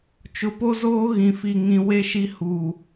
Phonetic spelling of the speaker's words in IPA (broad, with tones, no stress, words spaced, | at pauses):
t͡ʃʊ˨po˦zoː˦ ɣĩ˨fi˨ŋĩ˨ we˦ʃi˦ huː˨